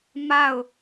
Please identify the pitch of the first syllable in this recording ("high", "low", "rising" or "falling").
falling